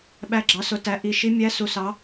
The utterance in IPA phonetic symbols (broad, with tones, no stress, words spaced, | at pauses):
ɓæ˧˥ɡ͡ǁɑ˩˥sʊ˩˥tæ˩˥ ʔi˩˥ʃi˧˥ mʲæ˧˥su˨ sɑ˧˥